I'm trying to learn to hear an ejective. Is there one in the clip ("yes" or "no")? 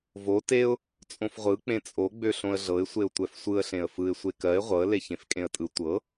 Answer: yes